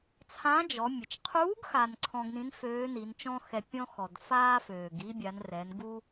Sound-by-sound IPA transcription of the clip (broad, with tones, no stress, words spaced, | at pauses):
t͡sʰã˧˥d͡ʒɔ˩˧ mʲə˩t͡ʃqʰuː˧˥ɡ xaː˧nǀʰɔ̃˧ɡnĩ˧˥n føː˧˥ni˩˧nt͡ʃɔ̃˥ xɛ˧pʲɔ̃˥xɔ˩d faː˥føː˩ɡ i˥ bʲa˩˧nrɛ˩˧n ɡu˥